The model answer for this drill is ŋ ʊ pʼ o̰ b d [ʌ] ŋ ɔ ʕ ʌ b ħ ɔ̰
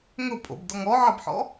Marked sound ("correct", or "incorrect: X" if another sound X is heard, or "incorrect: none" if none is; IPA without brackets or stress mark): incorrect: ɔ